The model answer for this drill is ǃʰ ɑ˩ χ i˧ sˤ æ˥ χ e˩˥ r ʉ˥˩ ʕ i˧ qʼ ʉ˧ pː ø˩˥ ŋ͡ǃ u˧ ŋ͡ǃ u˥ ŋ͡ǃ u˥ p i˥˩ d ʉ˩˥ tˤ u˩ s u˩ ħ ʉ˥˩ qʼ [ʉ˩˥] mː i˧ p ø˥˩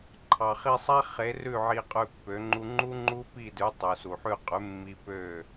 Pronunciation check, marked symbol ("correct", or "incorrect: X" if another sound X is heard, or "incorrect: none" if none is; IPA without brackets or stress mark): correct